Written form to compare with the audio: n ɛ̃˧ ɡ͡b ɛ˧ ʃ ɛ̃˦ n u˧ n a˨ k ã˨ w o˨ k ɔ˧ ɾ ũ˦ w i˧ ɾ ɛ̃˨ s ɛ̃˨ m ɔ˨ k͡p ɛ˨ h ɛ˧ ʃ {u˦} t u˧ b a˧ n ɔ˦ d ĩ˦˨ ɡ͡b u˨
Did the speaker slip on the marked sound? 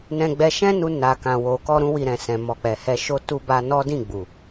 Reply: yes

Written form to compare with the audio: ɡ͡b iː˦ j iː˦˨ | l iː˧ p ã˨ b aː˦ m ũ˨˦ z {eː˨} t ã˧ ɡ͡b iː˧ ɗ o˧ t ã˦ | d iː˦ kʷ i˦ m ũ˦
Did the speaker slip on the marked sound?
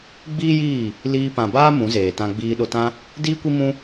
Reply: no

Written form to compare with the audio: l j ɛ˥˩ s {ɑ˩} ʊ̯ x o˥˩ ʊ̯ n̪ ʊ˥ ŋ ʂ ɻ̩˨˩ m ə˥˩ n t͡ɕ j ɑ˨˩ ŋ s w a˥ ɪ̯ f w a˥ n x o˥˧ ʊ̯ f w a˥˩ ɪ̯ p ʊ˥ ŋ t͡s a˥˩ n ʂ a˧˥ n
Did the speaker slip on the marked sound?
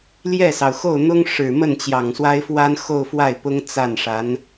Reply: no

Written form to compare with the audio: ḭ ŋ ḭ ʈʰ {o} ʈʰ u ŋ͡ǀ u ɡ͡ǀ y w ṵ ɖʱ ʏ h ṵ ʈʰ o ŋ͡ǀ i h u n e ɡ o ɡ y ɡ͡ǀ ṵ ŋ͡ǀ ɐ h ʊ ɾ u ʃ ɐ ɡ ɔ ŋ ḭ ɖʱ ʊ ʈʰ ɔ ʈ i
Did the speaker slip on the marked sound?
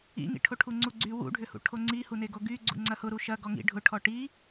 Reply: no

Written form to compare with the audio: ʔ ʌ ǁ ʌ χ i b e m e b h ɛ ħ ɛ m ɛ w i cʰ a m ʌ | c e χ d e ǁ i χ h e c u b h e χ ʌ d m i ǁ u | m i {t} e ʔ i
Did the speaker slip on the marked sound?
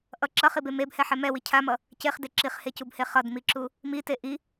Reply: no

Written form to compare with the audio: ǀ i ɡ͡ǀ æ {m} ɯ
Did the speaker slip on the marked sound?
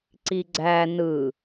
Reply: yes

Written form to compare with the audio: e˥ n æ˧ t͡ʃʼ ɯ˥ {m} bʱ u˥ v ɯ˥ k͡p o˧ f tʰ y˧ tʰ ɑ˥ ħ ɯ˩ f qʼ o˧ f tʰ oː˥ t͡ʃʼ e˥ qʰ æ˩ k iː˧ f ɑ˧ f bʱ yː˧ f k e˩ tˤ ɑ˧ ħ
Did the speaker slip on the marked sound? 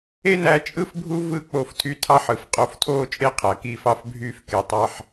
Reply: yes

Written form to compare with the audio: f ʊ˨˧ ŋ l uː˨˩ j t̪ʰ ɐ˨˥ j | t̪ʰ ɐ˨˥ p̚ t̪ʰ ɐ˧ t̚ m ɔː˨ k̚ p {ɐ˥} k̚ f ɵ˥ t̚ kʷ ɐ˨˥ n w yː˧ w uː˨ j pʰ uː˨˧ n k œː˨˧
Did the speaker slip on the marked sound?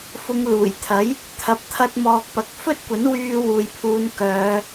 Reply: yes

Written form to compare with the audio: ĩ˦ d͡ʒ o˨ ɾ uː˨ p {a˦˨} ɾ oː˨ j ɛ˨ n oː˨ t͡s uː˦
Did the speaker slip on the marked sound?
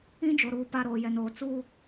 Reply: no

